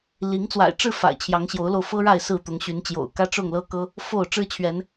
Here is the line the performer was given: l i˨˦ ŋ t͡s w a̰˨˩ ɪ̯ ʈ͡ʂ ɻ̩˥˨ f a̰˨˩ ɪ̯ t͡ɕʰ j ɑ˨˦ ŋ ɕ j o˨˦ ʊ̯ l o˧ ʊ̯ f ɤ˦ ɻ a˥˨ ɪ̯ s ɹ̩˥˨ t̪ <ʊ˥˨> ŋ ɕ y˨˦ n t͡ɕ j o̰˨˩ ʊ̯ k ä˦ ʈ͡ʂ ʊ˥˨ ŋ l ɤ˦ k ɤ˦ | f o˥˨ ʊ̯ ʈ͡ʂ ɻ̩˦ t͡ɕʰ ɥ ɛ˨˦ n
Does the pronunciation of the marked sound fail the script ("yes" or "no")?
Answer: yes